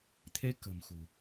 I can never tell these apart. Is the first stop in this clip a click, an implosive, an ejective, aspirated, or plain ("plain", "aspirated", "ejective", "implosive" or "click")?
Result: aspirated